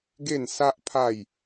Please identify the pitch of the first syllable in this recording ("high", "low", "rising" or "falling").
falling